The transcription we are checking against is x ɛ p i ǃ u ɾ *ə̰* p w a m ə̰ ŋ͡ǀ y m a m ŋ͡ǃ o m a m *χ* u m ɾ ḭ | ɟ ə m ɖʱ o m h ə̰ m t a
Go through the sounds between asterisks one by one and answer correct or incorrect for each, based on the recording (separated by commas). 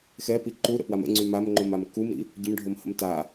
correct, incorrect